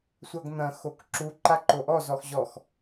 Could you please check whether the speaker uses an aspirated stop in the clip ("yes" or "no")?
no